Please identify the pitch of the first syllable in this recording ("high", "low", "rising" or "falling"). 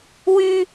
high